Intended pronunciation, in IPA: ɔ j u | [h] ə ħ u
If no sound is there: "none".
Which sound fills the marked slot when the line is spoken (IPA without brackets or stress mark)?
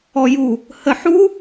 h